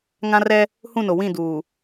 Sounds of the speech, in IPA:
ŋã˦rɛ˦ | hũ˦˨no˨wĩ˦˨ duː˨

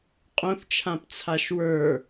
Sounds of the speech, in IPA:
qʼõθt͡ʃʰãpt͡sʰaʃ wə˞

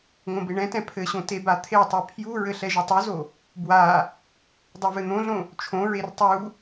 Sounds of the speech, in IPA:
ŋõbeɳɛ̃tɛ̃ pʰɘɕõ tebat̪ʰetˤe pʰjuɹɘ ɬɛʒɘtˤuzo | bwa | dˤuvɘn̪õɮõ | t͡ʃʰõɹer tˤu

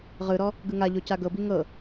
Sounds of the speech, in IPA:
ʁɯɾɔ | ɡɯŋaʎo caɡɤbi ŋɤ

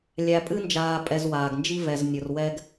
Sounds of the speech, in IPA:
lʲæ˨pʼɨ˦nd͡ʒaː˨ pʼɛ˨zwaː˩ɡnd͡ʒi˦vɛ˨z nʲʊ˨rwɛ˦ɡ

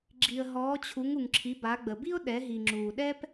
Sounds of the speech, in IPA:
ɡ͡ǁi˩ə̯ɦɔː˩˧t͡ɕʰu˩˧ŋ u˩ŋǁʰi˩˧ ba˩˧ɡ͡bə˩bi˥ʊ̯ɗɛ˩˧ ɦi˩ŋ͡ǁuː˩ɗɛ˥p

